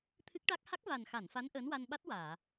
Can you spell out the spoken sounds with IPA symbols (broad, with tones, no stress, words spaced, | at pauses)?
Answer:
t̪ʰɨ˦˥k̚ʈa˦˥k̚ ha˦˥k̚va˨˩nxa˨˩˨nfa˧˥n ʔəː˧˥nwa˧n ɓa˦˥t̚waː˨˩˨